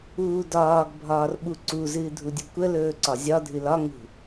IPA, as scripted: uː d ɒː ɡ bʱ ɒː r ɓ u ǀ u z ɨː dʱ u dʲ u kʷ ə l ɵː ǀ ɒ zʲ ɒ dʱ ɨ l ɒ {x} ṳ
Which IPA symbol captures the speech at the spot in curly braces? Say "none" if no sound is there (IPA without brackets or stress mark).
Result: ŋ